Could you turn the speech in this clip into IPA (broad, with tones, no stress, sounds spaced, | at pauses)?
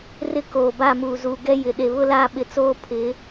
r ɪ˦ k oː˨ b a˦˨ m uː˨ z uː˨ ɡ ɛ˦ j ɪ˨ ɗ e˨ β ʊ˦ l a˦˨ ɓ ɪ˨ t͡s oː˦ pʰ ɪ˨˦